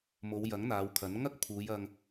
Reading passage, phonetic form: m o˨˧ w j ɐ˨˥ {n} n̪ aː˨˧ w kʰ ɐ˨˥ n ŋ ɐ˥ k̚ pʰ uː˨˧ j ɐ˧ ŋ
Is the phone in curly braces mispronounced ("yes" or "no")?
yes